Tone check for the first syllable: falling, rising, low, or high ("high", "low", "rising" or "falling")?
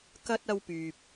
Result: high